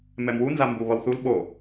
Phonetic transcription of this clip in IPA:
mɛmwu nzambu βʌwθul ɓo

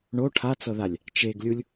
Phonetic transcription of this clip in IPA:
ɳo ʈʰat͡sɤðalʲ | t͡ʃeɡlʲulʲ

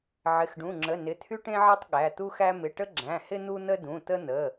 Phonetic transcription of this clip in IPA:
ʕɪ˩˧˩xɖũ˩˧˩ŋ͡ǁə˩˧˩ nɪ˩˧˩t̪ʰy˦ʈẽ˦ʕe˦tˤ ɠæ˩˧˩t̪u˦xæ˦ mɪ˩˧˩ʈə˦ɡ͡ǁæ̃˩˧˩hɪ˦ n̪u˦n̪ə˦ dũ˩˧˩t̪ə˦n̪ə˩˧˩

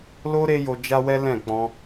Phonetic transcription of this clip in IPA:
lo˦ ɾe˦jo˧d͡ʒa˦wɛ˦ lɛ̃˦˨ k͡pɔ̃˧

